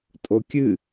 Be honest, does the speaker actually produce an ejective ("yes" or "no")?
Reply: yes